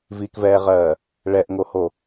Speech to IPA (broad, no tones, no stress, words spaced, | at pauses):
vikvɛːʁɜː | ɭɛʔŋoho